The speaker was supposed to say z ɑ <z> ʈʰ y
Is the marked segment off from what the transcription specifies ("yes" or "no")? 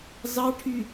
yes